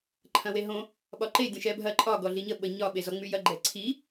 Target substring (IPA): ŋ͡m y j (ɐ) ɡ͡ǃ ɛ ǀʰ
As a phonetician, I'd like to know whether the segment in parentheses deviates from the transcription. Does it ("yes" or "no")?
no